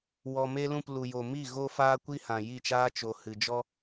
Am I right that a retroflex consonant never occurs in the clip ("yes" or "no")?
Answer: yes